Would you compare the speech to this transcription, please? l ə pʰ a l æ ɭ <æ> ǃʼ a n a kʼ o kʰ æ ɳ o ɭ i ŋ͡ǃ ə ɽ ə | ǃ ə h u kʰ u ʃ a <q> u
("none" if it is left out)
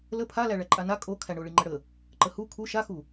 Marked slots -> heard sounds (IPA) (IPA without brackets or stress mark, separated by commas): æ, x